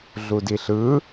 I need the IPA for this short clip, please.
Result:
ɮ u d i ɬ ɯ

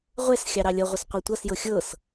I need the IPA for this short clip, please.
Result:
ʁʷ ɛ s xʲ ɑ ɾ ɑ lʲ ʌ ʁʷ ə s qʷ ɤ tʷ ʌ s j ɤ xʲ ɤ s

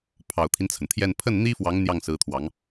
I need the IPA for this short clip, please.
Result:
pʰ ɑ˨˩ ʊ̯ t̪ʰ i˦ n t͡sʰ ə˩ n t̪ʰ j ɛ˥˧ n pʰ ə˥˩ n n̪ i˥ f w ɑ˧˥ ŋ n̪ j ɑ˥˩ ŋ s ɹ̩˧˥ t̪ʰ w ɑ˧˥ ŋ

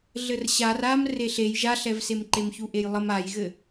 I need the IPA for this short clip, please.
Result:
ɮ ɘ r ɕ a r a m r e ɬ e j ʒ a ɬ ɛ v s e m ǃ e m ç u ʔ e j lˠ ə m a j ɣ ɘ

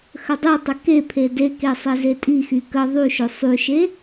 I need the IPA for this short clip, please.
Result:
x ə dˤ y tˤ ə k e pʰ e d e k e sˤ e z e tʼ i x y k ə ðˤ y ʃ ɵ sˤ y ʃ e

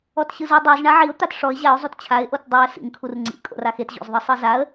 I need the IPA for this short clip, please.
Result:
ɔ t ɕ ɯ z ɯ dˤ e z ɳ a ʕ i ʊ̯ t̪ a t ʂ ɔ ɪ̯ ʑ a ʊ̯ zˤ u t t͡ɕʰ a ɪ̯ ʔ o t dˤ e ə̯ s ḭ ŋ kʰ u r ŋ͡ǀ ḭ kʼ o̰ r a x e t ʑ o̰ z ðˤ ɯ sˤ ɯ z a ə̯

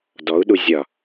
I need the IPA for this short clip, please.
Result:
d ɔ u̯ ɗ u zʲ ɒ

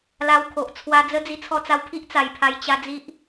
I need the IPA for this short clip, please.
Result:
l a˧ w kʰ o˨ ʔ t͡sʰ w a˧ d͡z ə˦ d͡z i˧ t͡sʰ ɔ˧ t͡s a˧ w pʰ i˦ ʔ t͡s a˨˩ j pʰ a˧ j t͡ɕ a˧ d͡z i˦ ʔ

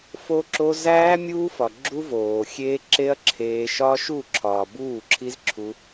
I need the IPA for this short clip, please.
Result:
f o˦ ǁ o˦ z æː˦ mʲ uː˦ f ɒ˨ ɡ͡ǁ u˦ v oː˨ xʲ eː˦ ǁ e˦ ɐ̯ ǁʰ eː˧ ʃ ɒ˦ ʃ u˦˨ ǁʰ ɒː˨ b uː˦˨ ǁʰ i˦ z ǁʰ u˦

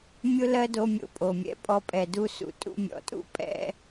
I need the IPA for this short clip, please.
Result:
mʲ ʊ˦ l ɜ˦ d o˧ mʲ o̰˨ pʼ o˨ mʲ ɛ̰˨ pʼ ɔ˧ pʼ ɛ˨ d u˧ s ṵ˨ tʼ ṵ˧ mʲ ɔ̰˨ tʼ ṵ˦ pʼ ɛ̰˧

